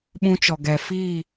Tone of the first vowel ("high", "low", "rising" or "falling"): high